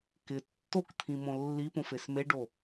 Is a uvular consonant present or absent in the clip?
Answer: absent